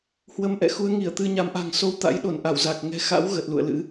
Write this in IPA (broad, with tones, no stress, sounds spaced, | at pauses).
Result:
h w ə˧ m ʔ ɛ̰˧˨ x u˨˦ ə̯ ŋ i˧˩ ə̯ t̪ ɨ˧ ɲ a˨˦ m ʔ a̤˨˩ ŋ s o˧ w t̪ a̰˧˥ j ɗ o˧˩ n ʔ a˧˩ w z a˨˩ k̚ ŋ ɛ̤˨˩ x a̰˧˥ w ɣ ə˨˩ t̚ l ṵ˧˨ ə̯ l ɨ̰˧˥